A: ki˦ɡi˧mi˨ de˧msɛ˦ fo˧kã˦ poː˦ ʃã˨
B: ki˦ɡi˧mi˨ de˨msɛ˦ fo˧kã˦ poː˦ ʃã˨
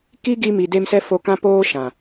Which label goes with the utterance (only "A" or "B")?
A